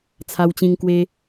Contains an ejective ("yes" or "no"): no